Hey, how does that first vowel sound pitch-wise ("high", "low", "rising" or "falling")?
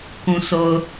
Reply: low